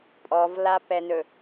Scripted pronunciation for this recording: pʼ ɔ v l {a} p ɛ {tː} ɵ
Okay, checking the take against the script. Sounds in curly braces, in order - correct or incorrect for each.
correct, incorrect

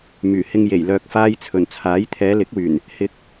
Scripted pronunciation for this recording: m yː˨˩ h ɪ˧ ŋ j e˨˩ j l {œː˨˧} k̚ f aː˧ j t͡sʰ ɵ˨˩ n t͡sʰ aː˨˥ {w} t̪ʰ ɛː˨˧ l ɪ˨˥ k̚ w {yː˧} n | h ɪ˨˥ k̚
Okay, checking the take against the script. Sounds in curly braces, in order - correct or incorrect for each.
incorrect, incorrect, incorrect

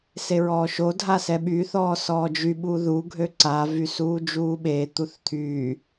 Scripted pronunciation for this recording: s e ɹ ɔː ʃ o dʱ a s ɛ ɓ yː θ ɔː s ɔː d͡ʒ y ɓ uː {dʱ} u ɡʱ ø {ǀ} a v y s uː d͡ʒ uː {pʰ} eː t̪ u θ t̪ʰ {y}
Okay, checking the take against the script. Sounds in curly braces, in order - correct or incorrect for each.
incorrect, correct, incorrect, incorrect

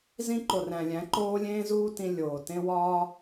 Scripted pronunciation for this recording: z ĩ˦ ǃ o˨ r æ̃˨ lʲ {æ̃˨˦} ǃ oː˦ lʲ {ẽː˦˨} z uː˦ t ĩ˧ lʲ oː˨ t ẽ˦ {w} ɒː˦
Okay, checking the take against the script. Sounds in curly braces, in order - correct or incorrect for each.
correct, incorrect, correct

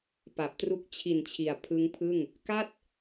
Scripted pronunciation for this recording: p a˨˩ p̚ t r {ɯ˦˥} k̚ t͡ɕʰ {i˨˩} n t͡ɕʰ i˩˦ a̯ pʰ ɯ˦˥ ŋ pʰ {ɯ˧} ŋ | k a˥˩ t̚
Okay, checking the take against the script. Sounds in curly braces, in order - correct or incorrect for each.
incorrect, correct, incorrect

